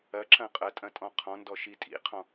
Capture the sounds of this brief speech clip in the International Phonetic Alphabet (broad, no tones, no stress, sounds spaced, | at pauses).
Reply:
ɐ ǁ ɐ̃ qʼ ɐ tʼ ɐ̃ tʼ ɔ̃ qʰ ɔ̃ n d ɔ ʃ i tʼ ḭ qʰ ɔ̃